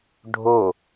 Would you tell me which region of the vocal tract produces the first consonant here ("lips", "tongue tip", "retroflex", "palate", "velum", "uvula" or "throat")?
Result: retroflex